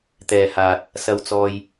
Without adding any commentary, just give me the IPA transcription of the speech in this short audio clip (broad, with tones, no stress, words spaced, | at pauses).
t̪ɛː˨haː˨t̚ | sɐ˨wt͡sɔː˨j